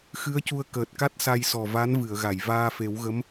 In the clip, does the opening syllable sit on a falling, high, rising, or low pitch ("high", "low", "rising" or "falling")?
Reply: rising